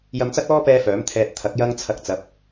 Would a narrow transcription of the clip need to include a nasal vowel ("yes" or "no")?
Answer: no